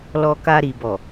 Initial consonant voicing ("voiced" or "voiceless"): voiced